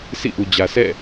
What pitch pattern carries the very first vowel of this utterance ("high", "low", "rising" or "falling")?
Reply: falling